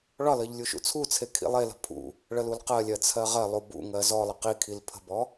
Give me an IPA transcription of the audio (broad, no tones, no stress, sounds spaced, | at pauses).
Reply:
ɭ ɒ l ɜ ʎ lʲ u ʃ ṵ t͡sʰ u t͡sʰ e kʰ ḭ lˠ e l ə̤ pʰ ṵ | ɭ ə l u l q ɜ lʲ ɜ t͡sʰ ɜ ʁ ɜ lˠ u b ṵ ŋ ɜ z ɔ lˠ ə q i kʰ i l pʰ ə̤ b ɔ